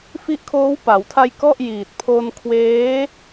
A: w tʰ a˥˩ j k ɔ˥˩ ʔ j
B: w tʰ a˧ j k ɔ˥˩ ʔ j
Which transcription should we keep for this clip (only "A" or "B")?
B